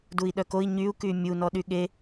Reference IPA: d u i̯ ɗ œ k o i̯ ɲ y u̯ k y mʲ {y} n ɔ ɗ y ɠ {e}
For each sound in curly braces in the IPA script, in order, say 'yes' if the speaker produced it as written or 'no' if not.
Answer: no, yes

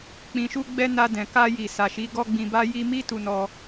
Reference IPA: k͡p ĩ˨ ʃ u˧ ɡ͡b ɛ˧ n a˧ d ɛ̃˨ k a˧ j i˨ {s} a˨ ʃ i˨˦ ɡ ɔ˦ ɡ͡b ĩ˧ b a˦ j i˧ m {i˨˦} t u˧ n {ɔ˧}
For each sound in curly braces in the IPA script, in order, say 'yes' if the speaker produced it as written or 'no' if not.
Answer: yes, no, yes

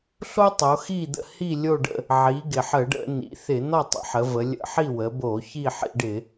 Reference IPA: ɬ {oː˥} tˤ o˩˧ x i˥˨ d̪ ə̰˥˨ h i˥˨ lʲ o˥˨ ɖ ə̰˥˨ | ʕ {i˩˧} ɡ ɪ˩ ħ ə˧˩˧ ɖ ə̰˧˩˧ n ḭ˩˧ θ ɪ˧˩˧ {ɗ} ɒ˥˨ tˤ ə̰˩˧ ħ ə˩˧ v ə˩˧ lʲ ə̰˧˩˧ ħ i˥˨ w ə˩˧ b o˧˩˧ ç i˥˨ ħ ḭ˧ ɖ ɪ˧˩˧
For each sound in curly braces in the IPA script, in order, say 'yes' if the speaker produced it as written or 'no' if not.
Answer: no, yes, no

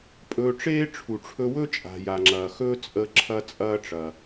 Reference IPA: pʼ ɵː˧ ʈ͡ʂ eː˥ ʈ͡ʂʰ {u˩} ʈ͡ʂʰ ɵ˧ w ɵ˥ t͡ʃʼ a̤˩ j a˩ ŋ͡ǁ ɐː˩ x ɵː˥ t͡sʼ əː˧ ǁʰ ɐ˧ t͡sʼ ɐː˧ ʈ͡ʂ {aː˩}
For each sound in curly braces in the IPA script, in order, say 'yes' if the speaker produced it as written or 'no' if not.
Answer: yes, no

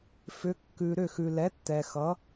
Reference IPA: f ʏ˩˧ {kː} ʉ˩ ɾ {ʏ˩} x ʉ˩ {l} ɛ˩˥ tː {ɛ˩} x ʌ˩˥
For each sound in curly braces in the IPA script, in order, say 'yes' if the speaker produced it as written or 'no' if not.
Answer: yes, no, yes, yes

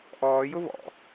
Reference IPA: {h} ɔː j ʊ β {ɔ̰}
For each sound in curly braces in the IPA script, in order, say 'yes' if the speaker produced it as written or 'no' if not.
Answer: no, yes

